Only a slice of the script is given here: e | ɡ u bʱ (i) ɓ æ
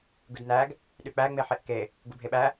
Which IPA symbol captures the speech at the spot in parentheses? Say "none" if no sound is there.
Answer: e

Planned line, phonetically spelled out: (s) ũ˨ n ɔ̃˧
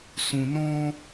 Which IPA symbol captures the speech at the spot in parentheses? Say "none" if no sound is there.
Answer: s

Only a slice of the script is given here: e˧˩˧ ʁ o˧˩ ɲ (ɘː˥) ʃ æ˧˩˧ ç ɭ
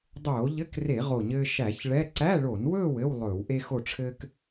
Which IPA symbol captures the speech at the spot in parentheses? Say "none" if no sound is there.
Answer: ɘː˥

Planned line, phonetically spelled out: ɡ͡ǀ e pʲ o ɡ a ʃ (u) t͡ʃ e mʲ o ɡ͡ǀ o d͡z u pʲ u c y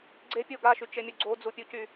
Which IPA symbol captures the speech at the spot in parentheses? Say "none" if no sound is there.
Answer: y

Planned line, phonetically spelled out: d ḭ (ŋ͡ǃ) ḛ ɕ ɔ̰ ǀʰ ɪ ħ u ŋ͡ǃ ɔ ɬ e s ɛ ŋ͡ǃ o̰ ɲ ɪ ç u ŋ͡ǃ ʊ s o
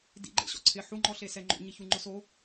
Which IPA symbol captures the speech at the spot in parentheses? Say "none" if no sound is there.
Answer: ɡ͡ǃ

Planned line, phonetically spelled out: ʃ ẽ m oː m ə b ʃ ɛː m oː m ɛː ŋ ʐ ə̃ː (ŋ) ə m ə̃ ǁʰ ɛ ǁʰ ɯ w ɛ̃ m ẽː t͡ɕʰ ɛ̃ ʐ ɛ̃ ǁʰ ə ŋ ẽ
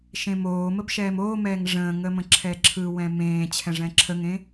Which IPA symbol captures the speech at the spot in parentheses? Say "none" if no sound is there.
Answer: ŋ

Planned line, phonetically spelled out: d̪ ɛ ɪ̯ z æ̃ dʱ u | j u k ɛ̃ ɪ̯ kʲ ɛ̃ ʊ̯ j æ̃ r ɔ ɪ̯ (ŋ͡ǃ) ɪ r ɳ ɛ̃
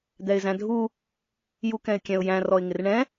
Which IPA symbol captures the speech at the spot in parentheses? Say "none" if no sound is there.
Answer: ŋ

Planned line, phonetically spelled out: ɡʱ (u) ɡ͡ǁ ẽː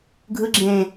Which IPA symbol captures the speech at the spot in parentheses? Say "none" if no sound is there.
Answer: ɯ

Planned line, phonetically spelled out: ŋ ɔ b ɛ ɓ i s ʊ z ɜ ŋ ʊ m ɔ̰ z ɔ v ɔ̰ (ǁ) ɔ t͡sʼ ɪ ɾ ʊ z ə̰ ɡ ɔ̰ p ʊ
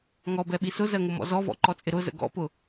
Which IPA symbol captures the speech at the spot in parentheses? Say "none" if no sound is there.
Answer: ǃ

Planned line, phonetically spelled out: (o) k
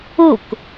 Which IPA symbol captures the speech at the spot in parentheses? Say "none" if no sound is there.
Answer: u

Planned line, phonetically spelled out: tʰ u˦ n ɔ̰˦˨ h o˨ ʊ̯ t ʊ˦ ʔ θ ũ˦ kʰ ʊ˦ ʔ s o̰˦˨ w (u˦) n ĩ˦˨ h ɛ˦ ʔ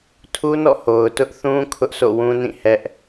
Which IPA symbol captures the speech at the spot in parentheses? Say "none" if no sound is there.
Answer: ũ˦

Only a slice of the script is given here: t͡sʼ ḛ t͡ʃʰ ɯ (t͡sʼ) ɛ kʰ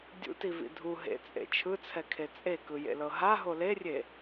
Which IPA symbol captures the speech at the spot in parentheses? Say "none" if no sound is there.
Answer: t͡sʰ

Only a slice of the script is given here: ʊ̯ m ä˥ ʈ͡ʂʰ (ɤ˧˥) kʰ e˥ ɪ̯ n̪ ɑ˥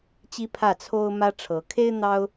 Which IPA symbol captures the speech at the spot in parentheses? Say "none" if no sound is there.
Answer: ɤ˧˥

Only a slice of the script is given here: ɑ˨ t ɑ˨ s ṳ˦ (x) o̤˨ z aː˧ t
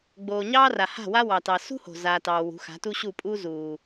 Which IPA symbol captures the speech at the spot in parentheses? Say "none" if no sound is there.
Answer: h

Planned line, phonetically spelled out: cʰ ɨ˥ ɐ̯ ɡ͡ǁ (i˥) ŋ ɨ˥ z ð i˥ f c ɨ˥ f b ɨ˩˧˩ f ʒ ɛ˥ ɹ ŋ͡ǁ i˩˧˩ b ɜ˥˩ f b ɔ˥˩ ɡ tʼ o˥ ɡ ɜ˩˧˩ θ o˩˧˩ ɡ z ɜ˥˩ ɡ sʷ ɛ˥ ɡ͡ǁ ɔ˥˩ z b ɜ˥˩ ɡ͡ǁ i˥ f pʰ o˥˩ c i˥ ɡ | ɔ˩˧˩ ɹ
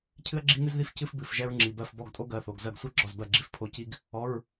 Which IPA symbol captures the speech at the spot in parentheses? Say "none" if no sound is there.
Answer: i˥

